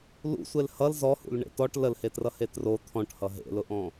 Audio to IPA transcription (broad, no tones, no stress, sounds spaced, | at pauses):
l ṵ sʷ e l h ʌ l z ɔ h ṵ l ɳ ḛ t ɔ ʈ l ə l h e t r ʌ h e t r o t̪ʰ ɔ̃ ʈ h ʌ ɦ ḛ l ʊ ʔ ɔ̃